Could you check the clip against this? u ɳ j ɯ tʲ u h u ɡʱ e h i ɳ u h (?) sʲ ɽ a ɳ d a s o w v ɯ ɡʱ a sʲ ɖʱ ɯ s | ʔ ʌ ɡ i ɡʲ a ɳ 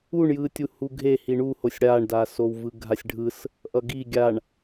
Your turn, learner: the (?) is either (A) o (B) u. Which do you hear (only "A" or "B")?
A